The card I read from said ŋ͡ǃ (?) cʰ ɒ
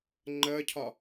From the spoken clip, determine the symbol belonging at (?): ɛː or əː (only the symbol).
əː